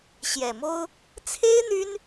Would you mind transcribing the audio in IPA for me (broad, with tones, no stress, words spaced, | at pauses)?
ɕjɛ˨˩mo˥ʊ̯ | t͡sʰe˥ɪ̯ n̪y˥n